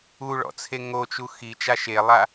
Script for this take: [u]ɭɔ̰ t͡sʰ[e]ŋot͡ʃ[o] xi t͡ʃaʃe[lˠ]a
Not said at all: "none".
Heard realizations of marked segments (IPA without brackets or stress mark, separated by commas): u, e, u, lˠ